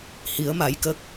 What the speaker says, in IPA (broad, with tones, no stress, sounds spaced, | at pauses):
h i˨˦ ə̯ m a˨˦ j k əː˦˥ k̚